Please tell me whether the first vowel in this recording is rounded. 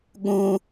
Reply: yes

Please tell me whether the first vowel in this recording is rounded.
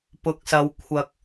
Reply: yes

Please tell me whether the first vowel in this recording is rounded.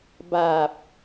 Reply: no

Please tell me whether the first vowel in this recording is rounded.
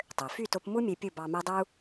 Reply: yes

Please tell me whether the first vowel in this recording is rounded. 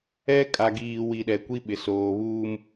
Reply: no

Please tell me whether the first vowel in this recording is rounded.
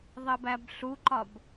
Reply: no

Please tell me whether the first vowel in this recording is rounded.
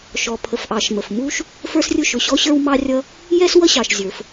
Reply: yes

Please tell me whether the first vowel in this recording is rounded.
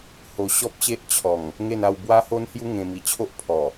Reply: yes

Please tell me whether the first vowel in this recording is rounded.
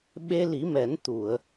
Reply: no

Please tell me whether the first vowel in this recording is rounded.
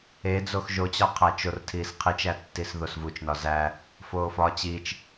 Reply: no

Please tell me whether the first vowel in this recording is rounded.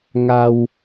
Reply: no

